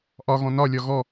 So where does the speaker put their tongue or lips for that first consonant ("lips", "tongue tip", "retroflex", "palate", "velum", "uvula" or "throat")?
throat